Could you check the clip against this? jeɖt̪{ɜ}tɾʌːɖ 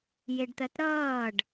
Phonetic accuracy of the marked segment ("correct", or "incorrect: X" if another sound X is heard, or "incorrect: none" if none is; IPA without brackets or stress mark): correct